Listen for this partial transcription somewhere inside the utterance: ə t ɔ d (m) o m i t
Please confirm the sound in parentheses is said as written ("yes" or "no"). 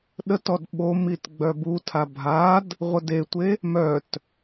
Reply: no